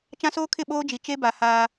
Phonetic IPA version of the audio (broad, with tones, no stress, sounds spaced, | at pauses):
t͡ʃ ã˦ s oː˦ kʰ ɪ˦˨ ɓ oː˦ d͡ʒ i˨ t͡ʃ e˦ b a˨ h aː˦